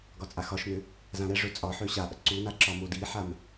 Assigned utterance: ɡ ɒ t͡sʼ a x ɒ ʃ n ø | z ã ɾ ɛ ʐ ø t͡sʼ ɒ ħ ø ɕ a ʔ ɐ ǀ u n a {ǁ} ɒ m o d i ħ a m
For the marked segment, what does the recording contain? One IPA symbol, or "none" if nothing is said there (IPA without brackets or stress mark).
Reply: ǁ